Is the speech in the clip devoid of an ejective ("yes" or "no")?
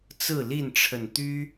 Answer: yes